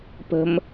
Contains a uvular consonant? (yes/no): no